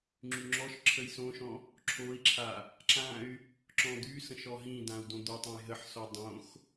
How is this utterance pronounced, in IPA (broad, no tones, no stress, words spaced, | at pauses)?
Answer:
ŋ͡ǁyŋ͡ǁɔʃǁʰəj sõʃɔ̃ | ǁʰoi̯ǁʰa | ǁãy̯ | ǁɔ̃d̪ysə̃ʃ ɔɦĩdãu̯ dõd̪otˤõj ɦəħsɔ dˤõx